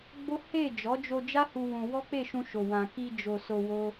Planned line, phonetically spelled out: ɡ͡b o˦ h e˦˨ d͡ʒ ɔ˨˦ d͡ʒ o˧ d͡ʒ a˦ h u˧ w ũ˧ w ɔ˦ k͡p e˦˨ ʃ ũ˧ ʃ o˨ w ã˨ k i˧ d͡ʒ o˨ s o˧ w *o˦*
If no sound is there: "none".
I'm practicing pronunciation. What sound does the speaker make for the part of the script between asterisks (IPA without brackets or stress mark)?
o˦